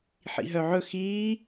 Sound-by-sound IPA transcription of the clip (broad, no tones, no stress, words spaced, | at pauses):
ħḭɦœʕɵ xiː